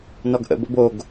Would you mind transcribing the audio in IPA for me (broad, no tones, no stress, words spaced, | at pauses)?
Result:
nɔɡʔə̰ bə̰boɡ